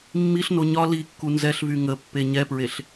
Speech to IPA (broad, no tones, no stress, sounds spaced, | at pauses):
mː i ɬ n o ɲ ɒ l i kː u n z ɛ ɬ v y ŋ ə pː e ɲ ɛ p ɹ e ɬ